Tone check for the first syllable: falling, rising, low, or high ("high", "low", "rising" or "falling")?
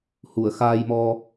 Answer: low